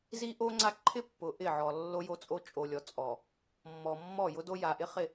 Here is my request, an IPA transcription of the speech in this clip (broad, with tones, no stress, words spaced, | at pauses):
zi˦ʔo˦ŋ͡ǀa˦ ǃʰɪ˦ pːʊ˨ʔɪ˦˨ʕɔ˨ lːo˦jo˦t͡sʼo˦ t͡ʃʼo˨lʲɔ˨t͡sʼɔ˨ | mːɔ˨mːɔ˦˨ jʊ˦do˦ ja˨ʔɪ˦χɪ˦˨